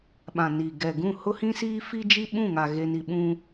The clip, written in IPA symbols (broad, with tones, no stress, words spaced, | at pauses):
ɓã˨niː˨ ɡɛ˨ ɡũ˦˨ hʊ˦hĩ˦siː˦ fi˦d͡ʒi˦ɓũ˦˨ŋa˨ ɣe˦ni˦ ɓũ˦